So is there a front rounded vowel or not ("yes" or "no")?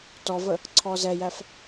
no